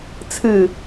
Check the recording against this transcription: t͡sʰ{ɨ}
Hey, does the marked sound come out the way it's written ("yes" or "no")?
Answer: yes